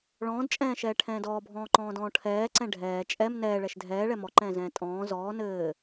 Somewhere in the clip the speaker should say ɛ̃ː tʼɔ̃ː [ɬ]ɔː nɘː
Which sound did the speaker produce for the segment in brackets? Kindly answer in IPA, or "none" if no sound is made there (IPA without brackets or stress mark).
z